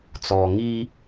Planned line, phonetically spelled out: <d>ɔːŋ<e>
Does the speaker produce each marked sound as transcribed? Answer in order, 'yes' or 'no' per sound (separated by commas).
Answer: no, no